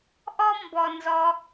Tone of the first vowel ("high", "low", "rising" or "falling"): high